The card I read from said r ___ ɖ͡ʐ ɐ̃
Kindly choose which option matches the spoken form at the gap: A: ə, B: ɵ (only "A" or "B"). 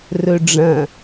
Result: B